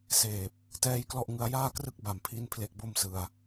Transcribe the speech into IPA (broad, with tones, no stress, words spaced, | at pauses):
seː˨˩p̚ | tɛː˧j klɔ˥˩ʔŋɯ˧a̯ jaː˥˩krɯ˥˩k̚ ba˨˩mpʰi˧n pʰle˦˥k̚bo˥˩msɯ˧a̯